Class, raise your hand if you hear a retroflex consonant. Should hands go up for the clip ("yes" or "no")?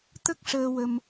yes